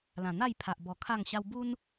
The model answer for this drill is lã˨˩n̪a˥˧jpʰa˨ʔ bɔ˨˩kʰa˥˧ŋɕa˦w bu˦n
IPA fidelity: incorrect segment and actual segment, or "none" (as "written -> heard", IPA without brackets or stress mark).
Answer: none